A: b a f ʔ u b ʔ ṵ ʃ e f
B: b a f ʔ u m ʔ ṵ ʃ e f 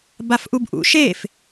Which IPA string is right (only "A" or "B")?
A